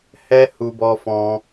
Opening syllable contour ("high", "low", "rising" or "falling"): high